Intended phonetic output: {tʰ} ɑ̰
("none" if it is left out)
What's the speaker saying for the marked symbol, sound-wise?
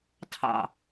tʰ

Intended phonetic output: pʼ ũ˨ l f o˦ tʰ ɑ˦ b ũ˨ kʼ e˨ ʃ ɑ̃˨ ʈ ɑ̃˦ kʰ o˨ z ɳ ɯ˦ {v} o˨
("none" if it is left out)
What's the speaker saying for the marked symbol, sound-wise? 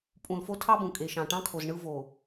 v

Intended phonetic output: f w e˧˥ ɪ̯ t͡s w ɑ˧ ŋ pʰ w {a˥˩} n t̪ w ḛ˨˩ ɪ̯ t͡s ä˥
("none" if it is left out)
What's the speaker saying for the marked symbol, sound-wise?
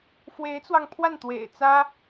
a˥˩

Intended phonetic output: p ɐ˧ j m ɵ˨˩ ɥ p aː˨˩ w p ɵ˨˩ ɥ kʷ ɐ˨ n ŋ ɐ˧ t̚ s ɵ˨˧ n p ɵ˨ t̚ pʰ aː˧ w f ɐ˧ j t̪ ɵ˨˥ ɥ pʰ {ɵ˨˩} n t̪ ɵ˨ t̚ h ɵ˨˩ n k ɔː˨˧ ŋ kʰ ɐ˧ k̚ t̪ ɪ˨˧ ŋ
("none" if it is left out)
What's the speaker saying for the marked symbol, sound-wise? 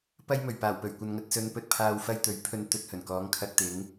ɵ˨˧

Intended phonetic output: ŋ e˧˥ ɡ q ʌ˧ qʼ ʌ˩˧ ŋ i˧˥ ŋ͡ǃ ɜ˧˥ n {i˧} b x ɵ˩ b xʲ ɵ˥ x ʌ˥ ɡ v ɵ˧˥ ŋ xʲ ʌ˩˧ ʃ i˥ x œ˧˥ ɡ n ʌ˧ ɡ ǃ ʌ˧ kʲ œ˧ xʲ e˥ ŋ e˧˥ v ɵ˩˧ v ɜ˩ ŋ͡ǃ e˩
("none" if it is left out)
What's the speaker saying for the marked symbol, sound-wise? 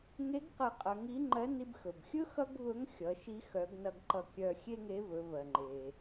i˧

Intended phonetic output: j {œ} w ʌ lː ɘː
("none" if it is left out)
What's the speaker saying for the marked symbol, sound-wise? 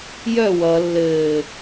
œ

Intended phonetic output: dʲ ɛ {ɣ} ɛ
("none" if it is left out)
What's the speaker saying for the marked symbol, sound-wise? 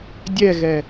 ɣ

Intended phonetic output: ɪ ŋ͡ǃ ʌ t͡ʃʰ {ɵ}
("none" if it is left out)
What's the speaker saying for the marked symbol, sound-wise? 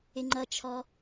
ɔ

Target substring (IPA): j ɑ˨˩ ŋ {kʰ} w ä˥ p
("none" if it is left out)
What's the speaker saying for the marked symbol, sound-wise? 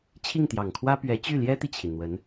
kʰ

